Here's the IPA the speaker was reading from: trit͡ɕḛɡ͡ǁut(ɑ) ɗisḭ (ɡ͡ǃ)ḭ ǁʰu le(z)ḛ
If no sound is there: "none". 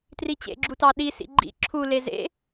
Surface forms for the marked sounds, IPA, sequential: ɑ, ɡ͡ǃ, z

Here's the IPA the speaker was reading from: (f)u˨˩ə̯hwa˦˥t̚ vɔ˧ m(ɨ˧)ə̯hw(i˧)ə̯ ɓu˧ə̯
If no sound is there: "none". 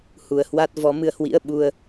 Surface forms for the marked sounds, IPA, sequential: h, ɨ˧, ḭ˧˥

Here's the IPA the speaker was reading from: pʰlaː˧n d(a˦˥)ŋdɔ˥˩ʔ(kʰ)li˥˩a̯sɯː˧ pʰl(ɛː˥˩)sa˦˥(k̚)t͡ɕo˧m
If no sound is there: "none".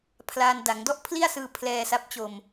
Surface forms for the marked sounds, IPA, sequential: a˩˦, pʰ, ɛː˧, p̚

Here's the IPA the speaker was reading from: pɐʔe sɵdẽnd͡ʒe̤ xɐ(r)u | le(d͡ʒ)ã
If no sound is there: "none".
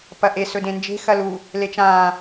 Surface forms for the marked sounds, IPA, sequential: l, t͡ʃ

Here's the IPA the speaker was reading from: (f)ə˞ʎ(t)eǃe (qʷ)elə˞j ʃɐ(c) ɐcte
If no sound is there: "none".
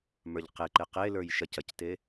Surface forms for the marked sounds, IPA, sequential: m, q, q, c

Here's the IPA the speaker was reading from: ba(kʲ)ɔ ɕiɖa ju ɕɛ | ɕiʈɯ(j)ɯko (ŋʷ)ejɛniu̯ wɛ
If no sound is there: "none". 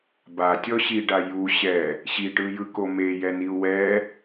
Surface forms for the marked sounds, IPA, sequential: tʲ, j, m

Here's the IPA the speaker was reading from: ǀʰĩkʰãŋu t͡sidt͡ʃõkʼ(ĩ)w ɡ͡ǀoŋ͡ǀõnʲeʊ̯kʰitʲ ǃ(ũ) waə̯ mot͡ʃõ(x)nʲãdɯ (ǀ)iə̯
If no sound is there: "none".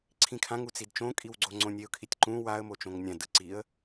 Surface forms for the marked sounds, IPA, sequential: i, ũ, ŋ, ǀ

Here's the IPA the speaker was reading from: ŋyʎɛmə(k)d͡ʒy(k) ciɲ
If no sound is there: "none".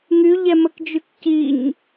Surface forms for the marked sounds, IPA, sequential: k, k

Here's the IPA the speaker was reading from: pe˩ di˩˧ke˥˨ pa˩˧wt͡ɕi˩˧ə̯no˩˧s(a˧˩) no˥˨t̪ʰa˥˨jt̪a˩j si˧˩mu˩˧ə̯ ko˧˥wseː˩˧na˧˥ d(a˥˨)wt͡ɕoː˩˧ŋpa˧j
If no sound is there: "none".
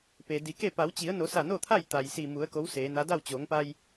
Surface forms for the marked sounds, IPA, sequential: a˧˩, a˥˨

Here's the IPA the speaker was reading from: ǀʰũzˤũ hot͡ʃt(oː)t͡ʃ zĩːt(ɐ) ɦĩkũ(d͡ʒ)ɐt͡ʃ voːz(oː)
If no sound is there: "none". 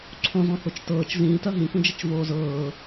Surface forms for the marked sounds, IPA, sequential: ɤː, ɐ, d͡ʒ, ɤː

